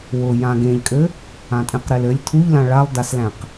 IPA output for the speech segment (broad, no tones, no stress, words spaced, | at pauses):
wʊ jãɡẽʎkʼɘ | ãtʼẽqɾelɘlʲ tʰuʎlã ɭalˠdaslæ̃q